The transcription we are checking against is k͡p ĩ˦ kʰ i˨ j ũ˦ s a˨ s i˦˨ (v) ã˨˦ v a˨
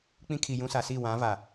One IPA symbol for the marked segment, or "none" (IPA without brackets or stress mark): w